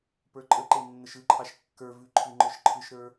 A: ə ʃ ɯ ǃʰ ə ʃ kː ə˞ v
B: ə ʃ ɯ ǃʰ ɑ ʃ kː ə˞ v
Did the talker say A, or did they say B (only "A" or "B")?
B